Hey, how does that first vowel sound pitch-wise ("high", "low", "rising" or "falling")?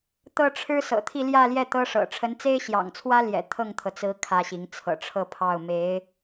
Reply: high